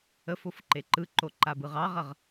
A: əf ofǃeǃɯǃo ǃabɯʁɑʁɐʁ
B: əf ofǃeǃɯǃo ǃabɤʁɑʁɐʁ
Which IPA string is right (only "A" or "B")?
A